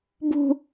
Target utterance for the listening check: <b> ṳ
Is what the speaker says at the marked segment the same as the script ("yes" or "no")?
yes